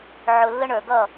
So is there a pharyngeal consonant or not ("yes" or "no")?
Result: yes